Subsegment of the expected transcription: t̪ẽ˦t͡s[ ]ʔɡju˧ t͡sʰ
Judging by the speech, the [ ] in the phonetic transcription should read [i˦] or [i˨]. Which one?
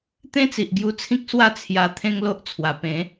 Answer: i˨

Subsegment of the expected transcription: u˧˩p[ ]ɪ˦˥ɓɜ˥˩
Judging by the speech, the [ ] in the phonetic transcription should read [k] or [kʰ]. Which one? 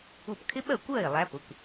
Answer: kʰ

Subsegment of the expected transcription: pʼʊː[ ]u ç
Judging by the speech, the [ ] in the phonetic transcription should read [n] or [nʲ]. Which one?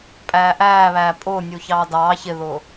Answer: nʲ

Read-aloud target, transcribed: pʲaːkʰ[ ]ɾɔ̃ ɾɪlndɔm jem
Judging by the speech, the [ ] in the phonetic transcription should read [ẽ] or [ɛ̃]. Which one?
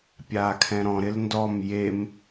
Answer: ɛ̃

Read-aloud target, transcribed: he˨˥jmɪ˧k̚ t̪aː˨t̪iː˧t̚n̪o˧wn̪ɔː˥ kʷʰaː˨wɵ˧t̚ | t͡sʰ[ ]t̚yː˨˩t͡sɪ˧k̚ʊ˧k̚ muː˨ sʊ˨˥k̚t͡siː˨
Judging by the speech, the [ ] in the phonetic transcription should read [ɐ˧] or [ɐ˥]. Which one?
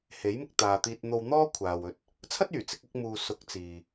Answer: ɐ˥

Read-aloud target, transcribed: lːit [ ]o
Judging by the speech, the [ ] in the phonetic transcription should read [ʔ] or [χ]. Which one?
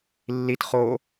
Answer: χ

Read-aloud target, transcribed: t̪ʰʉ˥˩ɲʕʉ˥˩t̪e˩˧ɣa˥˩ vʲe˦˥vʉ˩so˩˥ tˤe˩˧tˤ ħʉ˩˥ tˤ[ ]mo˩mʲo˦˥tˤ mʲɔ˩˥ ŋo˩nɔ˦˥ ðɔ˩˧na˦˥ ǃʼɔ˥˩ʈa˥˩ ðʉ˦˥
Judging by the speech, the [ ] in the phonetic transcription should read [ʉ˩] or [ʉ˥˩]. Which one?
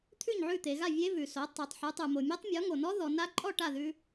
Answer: ʉ˩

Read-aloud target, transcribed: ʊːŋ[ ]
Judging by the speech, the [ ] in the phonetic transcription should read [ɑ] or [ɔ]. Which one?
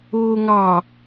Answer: ɑ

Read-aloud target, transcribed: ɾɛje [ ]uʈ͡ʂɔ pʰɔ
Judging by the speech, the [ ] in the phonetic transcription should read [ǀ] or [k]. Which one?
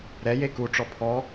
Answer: k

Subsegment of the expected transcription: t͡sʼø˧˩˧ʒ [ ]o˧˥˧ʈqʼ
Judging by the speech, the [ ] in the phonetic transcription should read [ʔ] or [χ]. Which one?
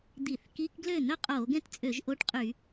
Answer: ʔ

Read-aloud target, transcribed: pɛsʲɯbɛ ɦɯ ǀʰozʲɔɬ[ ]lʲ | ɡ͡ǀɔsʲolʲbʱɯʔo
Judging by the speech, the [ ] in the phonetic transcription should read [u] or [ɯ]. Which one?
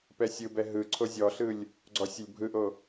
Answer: ɯ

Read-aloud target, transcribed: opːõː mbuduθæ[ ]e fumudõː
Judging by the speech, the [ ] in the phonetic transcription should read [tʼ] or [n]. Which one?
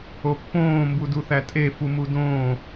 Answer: tʼ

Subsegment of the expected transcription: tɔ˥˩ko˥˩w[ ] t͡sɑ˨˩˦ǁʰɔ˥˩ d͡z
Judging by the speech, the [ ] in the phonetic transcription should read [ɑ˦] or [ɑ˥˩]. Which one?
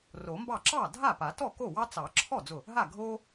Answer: ɑ˦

